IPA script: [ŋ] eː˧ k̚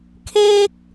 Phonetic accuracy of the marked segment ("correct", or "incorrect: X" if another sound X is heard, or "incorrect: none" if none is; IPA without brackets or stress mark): incorrect: kʰ